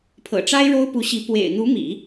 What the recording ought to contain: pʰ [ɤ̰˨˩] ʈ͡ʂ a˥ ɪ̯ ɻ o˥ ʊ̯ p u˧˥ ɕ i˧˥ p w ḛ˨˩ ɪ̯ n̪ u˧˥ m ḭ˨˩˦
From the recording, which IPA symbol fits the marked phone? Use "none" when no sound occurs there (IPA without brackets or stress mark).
ɤ̰˨˩